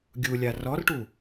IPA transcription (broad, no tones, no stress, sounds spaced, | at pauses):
ɡʲ u lʲ a r ɔ r ʈ u